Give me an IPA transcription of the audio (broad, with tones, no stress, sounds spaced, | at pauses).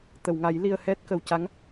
t̪ ə˨˩˨ w ŋ a˨˩˦ j l i˧ ə̯ h ɛ˦˥ t̚ k ə˨˩ w c a˧˥ ŋ